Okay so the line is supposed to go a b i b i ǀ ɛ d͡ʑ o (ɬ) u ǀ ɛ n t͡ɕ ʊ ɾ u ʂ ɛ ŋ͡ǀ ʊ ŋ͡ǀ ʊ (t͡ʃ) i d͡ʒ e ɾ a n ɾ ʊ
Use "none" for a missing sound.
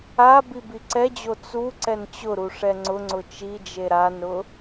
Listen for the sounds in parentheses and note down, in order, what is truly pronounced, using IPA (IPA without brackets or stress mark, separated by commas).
t͡s, t͡ʃ